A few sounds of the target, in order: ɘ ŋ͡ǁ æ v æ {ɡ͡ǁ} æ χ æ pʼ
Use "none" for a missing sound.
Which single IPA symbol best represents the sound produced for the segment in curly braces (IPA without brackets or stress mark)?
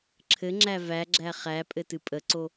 ɡ͡ǁ